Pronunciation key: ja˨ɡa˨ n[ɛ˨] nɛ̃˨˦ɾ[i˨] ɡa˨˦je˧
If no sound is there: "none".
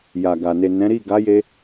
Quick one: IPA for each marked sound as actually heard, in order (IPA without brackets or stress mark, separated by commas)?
e˨, i˦˨